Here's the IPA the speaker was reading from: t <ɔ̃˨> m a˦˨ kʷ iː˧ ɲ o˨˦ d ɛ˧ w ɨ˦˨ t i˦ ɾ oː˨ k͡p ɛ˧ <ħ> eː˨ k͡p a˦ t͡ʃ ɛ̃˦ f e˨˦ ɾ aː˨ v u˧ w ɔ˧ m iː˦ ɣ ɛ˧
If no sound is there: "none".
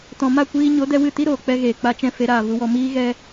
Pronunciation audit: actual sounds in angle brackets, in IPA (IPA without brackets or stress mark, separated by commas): ɔ̃˨, ɣ